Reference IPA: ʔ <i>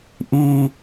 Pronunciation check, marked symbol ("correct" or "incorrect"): correct